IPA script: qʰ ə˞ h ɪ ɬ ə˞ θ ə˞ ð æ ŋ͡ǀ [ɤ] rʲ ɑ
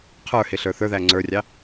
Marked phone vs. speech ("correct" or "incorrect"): incorrect